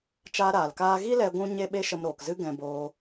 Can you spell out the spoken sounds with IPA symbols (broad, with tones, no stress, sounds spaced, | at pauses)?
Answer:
t͡ʃ aː˧ ɾ aː˨ l k aː˧ ɣ i˦ l ɛ˧ ɡʷ ũ˦ ɲ e˦ ɓ e˦ ʃ ə˦ m ɾ oː˧ k z ɨ˦ ɡ ɛ̃˧ b oː˧